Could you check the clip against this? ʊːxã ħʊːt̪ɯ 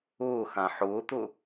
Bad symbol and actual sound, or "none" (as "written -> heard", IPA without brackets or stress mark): ɯ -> ʊ